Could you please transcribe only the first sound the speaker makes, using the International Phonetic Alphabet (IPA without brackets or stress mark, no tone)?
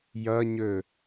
j